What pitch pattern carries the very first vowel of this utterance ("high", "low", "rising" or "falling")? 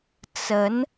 rising